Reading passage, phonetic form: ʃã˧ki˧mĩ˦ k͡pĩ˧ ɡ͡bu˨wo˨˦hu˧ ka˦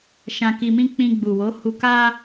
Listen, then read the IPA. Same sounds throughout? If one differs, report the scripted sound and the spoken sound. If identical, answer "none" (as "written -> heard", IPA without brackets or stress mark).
none